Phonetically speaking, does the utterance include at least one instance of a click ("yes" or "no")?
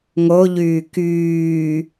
no